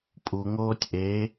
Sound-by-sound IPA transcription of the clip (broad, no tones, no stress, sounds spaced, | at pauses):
pʼ u ŋ oː tʲ ʔ e